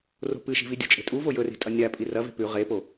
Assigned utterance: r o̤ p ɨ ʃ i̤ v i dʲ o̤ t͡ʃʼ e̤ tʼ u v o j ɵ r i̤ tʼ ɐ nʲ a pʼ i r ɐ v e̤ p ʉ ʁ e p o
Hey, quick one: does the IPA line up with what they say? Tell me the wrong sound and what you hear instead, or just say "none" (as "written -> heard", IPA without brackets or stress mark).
none